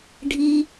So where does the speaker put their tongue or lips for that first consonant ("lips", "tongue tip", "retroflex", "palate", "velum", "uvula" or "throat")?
retroflex